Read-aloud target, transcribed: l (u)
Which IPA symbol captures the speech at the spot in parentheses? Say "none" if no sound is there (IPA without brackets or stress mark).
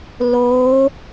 o